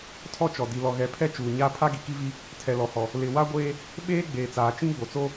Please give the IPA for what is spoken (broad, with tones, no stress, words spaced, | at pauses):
tʰɔ˦t͡ʃɔ˨ di˨lɔ˨ ɣɛ˨˦pʰɛ˦ t͡ʃuː˨ɲaː˦ pʰa˦ɡi˨ki˦vi˦ | tʰɛ˨lɔ˨hɔ˨ | lɪ˨ wa˦ɡʷeː˦ | ɓeː˦ ɡ͡beː˨t͡saː˨ t͡ʃĩ˦ɡ͡bo˨t͡so˦